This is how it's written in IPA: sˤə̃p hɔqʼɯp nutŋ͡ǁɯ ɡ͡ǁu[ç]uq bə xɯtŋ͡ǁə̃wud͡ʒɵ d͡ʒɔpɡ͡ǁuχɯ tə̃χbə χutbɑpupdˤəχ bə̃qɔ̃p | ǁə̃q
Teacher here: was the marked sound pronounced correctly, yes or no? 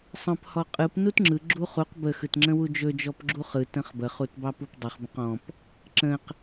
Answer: no